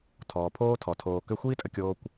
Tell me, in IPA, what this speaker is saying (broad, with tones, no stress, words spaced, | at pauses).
tʰɔː˨pʰoː˦tʰɔ˨ tʰoː˨ kʏ˧xʷiː˦tʼə˧ kʲoː˧kʷ